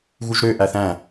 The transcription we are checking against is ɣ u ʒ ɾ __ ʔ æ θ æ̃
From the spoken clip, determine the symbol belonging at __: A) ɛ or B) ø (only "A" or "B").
B